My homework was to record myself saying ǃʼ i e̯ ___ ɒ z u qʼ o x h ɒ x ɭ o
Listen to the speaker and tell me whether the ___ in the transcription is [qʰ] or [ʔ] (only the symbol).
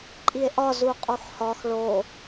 ʔ